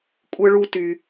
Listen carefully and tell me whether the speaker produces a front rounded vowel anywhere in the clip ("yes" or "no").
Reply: yes